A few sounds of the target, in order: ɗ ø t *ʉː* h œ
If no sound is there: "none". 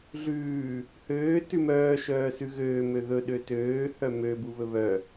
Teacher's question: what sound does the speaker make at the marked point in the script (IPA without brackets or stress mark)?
øː